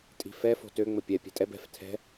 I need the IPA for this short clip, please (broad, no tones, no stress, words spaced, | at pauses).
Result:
tʼi̤fɛ fo̤tø ŋ͡məpʲɛ pʲɛ̤tʼɛb ɛ̤f tʰɛ̤